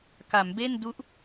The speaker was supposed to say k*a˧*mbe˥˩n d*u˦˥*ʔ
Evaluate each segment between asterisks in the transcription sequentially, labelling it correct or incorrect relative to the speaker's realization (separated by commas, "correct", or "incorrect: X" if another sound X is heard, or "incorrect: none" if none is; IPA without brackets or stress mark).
incorrect: a˩˦, correct